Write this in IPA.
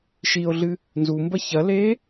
ʃ i o̯ ɮ ɨ | n z u m b ɐ ç ɐ l eː

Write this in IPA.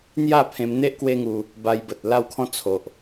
n̪ j a˥˧ pʰ ẽ˧ m n̪ e˦ ʔ k w e˦ ŋ u˧ | b a˧ j b ə˨ t̚ l a˥˧ w kʰ ɔ̃˦ t͡sʰ o˨ ʔ

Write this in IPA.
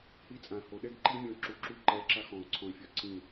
h i˧ t͡sʼ ã˨ h o˨ ɗ ɛ˦ ɡ ǃ i˦ mʲ ɔ̃˧ ǁ u˨˦ ǁ u˧ ǃ ɛ˨˦ ǁ a˧ x ɔ̃˨ ʊ̯ ǀʰ ɔ̃˨ ɪ̯ fʲ ɔ˨ ǀ ĩ˦˨

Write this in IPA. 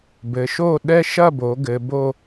b ɘ˩˧ ʃ o˥˧ ɗ ɛ˥ ʃ ɐ˥˧ b o˩˧ ɡ ɘ˩˧ b o˥˧

